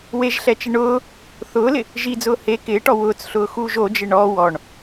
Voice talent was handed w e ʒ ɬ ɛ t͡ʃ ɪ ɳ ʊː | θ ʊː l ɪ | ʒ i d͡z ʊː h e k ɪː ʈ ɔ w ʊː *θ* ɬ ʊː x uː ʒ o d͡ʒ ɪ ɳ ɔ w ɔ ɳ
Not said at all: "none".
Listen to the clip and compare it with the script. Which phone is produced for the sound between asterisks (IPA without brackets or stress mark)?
t͡s